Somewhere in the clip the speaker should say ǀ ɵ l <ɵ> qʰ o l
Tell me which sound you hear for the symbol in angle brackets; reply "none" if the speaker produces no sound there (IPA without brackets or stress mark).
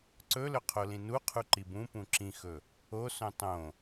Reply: ɵ